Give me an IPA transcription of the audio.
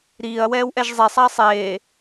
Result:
ɾ iː ɐ̯ w ɛː w ʔ ɛ ʒ zˤ ɛ sˤ a ɐ̯ sˤ eː

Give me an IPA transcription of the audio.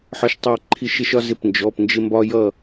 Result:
ħ ɒ˥ ʃ tˤ æ˥ ǃʰ i˥˧ ʃ ɪ˥ ʃ ɒ˥ z ɪ˥˧ p n d͡ʒ ɔ˧˥˧ p n d͡ʒ ɪ˥ m b ɒ˥ j ʌ˥˧

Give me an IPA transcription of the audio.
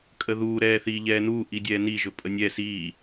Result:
kʼ ə ð uː ɾ ɛː θ iː ʎ ɛː n uː ʔ i dʲ ɛː n i ʒ ɵ pʼ ə nʲ ɛ s iː

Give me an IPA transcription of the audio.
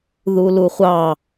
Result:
ð u l u χʷ ɑ

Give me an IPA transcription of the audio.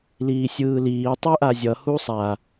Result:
l iː sʲ ɯː l iː tˤ u ʔ a zʲ ʌ h u sˤ a

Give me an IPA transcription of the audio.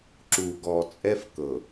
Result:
ǁ u˨ ɡ ɔ˨ t͡sʼ ɛ˦ f k ɤ˨

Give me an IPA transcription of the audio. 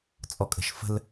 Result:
t͡sʼ ɔ kʼ ə̤ ʃ f ə̤ l

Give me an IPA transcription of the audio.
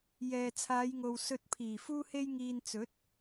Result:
j ɛː˨ t͡sʰ aː˨˧ j ŋ o˨ w s ɵ˧ t̚ pʰ iː˨˩ f uː˧ h e˧ j ŋ iː˨ n t͡s ɵ˨˥ t̚

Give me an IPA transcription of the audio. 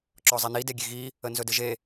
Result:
ǁ ɔ zˤ i n i d e ɡʲ e ɣ i | ə n z ɵ d ɘ ʒ e

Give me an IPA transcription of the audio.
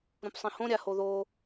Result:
ɾ ũ p sˤ ĩ h õ ɾʲ a h o ð o

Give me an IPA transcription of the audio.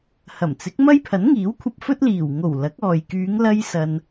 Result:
h ɐ˨˩ m t͡s ɪ˨˥ k̚ m ɐ˥ j pʰ ɐ˨˥ n ŋ iː˨˥ w kʷʰ ɐ˧ p̚ f ɵ˥ t̚ l iː˨˩ w ŋ o˨˩ w l ɐ˨˥ k̚ ɔː˨ j k yː˨˧ ŋ l ɐ˧ j s ɐ˧ n

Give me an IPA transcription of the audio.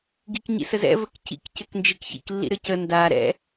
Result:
ɡ i k ɲ ḭ s ə z ɛ̰ v ə k c ḭ k c ɘ k n d͡ʒ i k ç ḭ k lː ḭ ɾ ɘ c ə n d a ɾ ɛ̰

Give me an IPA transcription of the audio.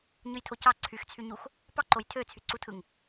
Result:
ɲ ɯ j tʰ o c ɑ ǀʰ y x t͡sʰ y ɲ u x | p ɑ ǃ o j tʰ ø t͡sʰ y ǀ u tʰ ɯ ŋ

